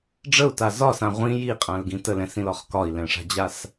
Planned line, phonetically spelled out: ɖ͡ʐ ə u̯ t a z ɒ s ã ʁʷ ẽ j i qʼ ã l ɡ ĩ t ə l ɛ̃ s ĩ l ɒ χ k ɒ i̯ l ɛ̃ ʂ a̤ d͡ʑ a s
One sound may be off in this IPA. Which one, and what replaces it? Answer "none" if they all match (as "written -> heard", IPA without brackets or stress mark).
ẽ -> ĩ